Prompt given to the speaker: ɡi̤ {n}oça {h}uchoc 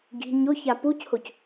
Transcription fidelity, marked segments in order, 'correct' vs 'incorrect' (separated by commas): incorrect, incorrect